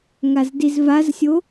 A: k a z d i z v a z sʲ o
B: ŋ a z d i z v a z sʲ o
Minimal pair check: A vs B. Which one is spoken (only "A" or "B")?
B